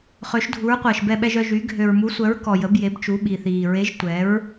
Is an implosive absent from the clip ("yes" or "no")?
no